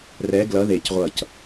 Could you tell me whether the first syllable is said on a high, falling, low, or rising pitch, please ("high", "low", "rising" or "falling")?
rising